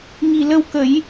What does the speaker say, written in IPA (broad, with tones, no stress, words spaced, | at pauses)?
ŋi˨˩lə˧wkə˨˩˦j